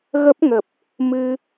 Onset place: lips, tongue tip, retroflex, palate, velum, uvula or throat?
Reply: velum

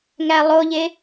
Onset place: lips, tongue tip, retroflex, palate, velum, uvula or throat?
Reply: velum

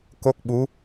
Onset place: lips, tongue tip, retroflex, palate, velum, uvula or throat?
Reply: velum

